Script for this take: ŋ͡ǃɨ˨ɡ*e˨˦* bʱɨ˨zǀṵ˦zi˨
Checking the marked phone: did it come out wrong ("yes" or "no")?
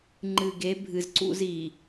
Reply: no